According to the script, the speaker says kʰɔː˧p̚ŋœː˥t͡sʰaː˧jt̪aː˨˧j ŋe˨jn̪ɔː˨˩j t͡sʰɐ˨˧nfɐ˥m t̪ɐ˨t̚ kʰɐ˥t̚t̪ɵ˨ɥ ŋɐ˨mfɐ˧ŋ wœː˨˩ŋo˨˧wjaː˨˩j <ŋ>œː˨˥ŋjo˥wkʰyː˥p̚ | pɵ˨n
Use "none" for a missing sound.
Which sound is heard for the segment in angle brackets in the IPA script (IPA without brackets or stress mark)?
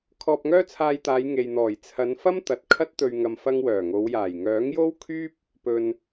ŋ